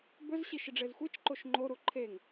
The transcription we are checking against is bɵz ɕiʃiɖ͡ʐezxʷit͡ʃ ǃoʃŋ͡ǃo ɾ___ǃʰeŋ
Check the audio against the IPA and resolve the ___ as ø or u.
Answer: u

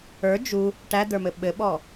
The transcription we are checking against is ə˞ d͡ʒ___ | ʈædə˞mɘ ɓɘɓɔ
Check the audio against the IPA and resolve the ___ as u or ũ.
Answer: u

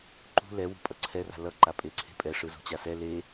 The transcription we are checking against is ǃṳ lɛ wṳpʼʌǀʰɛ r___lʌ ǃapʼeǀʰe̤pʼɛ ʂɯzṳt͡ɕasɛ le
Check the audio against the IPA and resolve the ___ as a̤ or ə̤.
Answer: a̤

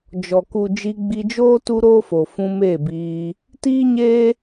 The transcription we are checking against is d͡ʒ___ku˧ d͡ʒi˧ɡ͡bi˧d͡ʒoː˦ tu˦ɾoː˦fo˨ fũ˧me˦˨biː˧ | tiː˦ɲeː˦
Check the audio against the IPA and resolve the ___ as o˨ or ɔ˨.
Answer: ɔ˨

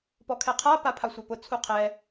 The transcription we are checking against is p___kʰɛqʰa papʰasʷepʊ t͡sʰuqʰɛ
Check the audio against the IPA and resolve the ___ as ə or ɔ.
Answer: ɔ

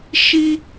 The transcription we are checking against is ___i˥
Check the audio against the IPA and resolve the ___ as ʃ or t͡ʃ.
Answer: ʃ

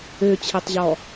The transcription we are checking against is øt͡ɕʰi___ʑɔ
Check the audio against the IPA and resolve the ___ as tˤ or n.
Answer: tˤ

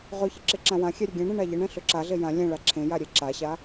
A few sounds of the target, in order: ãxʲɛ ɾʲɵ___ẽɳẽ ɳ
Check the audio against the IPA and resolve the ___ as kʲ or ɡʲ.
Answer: ɡʲ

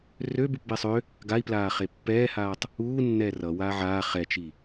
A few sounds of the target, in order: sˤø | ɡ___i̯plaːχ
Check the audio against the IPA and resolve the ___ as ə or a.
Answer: a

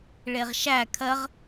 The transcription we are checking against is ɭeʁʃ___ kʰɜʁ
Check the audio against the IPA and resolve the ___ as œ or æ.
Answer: æ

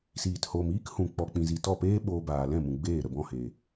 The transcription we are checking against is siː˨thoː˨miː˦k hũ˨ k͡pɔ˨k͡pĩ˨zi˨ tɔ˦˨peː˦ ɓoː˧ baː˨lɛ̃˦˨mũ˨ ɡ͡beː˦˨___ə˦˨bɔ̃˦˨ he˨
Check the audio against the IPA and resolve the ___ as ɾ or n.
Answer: ɾ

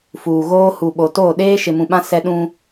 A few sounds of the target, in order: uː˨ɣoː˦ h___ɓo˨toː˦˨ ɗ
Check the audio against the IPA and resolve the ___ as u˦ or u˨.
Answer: u˨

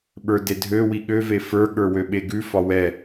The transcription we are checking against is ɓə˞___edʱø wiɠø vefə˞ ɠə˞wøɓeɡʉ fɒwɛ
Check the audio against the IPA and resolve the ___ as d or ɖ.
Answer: d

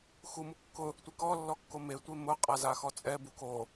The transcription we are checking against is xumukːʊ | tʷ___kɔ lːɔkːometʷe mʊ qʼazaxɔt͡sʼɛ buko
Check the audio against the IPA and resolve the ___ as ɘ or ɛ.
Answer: ɛ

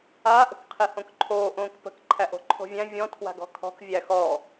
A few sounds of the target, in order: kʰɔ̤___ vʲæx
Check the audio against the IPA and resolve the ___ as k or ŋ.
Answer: k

